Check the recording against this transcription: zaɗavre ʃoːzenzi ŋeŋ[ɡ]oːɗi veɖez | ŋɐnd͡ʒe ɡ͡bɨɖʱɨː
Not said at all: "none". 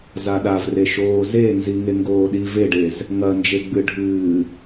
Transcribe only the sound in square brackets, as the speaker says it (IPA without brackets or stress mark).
ɡ